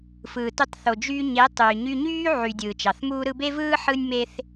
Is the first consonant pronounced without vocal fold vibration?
yes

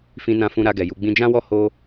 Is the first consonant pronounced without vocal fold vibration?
yes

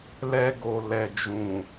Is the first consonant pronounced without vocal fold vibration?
no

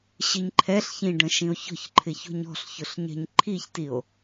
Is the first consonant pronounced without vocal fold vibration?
yes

